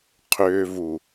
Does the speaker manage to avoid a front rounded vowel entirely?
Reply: no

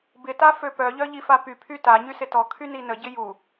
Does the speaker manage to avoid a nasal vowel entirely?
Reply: yes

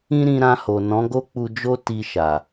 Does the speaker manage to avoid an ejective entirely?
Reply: yes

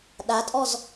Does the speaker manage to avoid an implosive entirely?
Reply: no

